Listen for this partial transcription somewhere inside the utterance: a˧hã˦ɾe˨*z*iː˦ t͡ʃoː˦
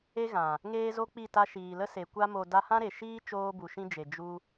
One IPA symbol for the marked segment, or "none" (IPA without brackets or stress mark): ʃ